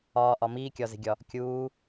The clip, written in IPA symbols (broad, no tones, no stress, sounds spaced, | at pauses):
ɒː ʔ ɒ m iː kʲ ɒ z e̤ ɡʲ ɒ | kʲ uː